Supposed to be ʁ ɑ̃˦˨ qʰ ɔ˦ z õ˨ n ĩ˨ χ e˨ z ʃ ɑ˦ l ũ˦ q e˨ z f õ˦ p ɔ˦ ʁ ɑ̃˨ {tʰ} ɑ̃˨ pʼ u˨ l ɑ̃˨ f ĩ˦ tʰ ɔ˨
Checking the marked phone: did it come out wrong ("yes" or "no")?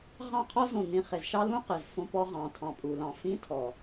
no